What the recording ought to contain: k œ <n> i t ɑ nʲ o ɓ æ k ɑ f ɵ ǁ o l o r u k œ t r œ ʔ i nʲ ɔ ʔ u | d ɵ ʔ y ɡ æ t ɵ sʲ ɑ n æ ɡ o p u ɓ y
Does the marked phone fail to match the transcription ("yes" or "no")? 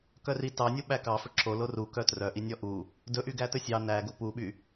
yes